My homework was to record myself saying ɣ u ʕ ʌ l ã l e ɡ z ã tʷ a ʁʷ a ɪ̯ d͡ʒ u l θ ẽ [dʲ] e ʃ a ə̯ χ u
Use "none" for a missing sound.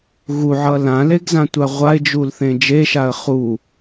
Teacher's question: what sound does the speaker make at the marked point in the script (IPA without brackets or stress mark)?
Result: d͡ʒ